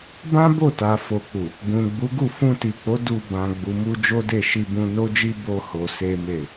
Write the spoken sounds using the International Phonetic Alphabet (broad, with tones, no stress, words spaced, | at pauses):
bã˦bo˦˨ta˨ fo˨k͡pu˨ | ɡũ˨ ɡ͡bu˨˦ɡu˦˨ fũ˧ti˨k͡po˨˦ du˧ bã˨ ɡ͡bu˨mu˧ d͡ʒo˦de˦˨ʃi˧bũ˧ no˦d͡ʒi˦ bo˦ho˧ se˦me˦˨